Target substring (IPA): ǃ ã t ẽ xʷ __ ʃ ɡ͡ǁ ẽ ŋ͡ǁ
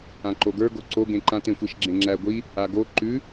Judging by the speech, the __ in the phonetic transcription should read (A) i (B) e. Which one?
A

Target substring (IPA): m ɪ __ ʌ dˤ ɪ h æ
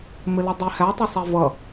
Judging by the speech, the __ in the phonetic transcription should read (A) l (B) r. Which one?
A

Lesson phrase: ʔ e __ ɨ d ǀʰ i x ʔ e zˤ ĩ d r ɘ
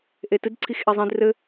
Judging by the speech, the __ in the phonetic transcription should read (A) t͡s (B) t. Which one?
B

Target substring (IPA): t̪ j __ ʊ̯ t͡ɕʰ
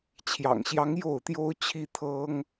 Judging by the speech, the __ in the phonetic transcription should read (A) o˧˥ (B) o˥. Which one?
B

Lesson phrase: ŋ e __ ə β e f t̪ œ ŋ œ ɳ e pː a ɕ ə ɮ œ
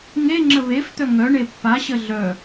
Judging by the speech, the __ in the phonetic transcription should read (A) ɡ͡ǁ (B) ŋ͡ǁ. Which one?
B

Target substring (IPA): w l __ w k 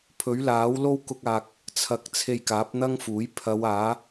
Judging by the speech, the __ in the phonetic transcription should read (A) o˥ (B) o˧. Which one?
A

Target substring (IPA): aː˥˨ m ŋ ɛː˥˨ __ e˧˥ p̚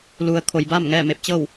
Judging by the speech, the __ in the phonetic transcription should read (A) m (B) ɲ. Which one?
A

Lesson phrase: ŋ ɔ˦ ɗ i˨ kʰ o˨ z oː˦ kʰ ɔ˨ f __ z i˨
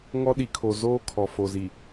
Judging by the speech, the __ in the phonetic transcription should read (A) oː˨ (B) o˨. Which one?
B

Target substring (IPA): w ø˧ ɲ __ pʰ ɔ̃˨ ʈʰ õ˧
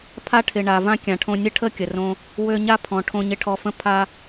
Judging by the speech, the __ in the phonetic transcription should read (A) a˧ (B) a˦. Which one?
B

